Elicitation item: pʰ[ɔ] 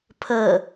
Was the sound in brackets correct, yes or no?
no